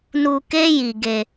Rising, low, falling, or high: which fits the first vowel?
low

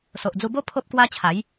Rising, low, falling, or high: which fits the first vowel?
low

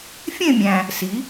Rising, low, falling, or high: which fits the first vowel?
falling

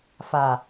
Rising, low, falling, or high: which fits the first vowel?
low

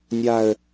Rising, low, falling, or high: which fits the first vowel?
low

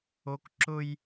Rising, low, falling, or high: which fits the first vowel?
high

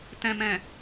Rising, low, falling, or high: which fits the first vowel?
low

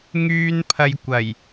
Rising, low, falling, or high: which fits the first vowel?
high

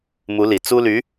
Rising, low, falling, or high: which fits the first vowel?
rising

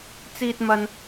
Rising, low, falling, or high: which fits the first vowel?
high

